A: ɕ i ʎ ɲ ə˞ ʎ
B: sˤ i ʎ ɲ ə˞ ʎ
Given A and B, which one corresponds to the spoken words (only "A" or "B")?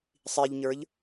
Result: B